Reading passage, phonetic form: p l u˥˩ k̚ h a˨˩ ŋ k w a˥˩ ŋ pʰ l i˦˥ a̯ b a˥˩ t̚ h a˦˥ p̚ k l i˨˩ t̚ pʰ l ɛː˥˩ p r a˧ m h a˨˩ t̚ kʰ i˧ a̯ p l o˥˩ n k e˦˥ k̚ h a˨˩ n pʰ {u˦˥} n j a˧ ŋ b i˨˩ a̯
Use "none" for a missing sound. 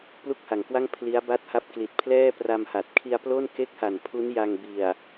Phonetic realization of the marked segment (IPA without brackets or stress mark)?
u˦˥